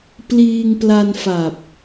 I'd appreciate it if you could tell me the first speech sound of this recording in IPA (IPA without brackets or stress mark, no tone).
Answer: p